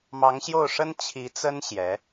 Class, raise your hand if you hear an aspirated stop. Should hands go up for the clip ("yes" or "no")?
yes